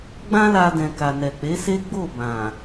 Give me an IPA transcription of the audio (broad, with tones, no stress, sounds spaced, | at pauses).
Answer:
ɡ͡b ã˦ l a˧ d ɛ̃˨ k a˨ n ɛ˨ k͡p e˨˦ s e˦ ɡ͡b o˦˨ b ã˨